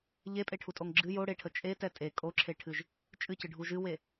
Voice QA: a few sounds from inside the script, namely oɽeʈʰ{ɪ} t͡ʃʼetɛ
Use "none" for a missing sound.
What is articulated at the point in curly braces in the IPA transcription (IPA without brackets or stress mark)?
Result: ə